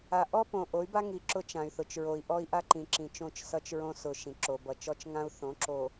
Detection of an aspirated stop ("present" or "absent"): absent